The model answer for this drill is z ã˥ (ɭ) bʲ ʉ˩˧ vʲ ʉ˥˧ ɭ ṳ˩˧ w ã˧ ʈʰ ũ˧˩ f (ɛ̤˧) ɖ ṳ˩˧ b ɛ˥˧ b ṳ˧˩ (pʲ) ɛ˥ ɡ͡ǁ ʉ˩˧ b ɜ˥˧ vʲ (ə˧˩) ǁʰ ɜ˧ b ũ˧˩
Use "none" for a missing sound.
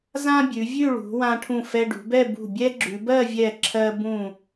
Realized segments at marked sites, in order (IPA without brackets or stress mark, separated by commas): none, ɛ˧, bʲ, ɛ˧˩